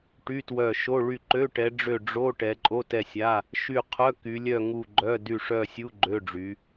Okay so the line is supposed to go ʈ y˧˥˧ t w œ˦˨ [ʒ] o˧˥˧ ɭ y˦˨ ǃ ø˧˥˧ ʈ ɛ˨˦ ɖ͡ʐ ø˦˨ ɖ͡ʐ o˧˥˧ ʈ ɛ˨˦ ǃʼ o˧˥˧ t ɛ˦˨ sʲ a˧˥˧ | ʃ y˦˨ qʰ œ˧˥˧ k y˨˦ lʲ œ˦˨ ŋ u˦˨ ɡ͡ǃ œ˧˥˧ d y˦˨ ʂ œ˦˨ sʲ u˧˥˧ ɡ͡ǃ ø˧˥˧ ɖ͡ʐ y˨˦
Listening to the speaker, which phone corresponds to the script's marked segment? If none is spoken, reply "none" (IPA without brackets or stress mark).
ʃ